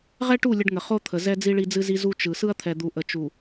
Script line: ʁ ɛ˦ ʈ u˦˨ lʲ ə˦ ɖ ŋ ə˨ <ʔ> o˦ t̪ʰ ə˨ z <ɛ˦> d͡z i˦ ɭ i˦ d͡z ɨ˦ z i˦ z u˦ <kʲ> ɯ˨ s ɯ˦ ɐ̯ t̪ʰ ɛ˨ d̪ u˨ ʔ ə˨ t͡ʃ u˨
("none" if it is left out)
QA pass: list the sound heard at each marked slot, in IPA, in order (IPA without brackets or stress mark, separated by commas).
χ, ɛ˦, t͡ʃ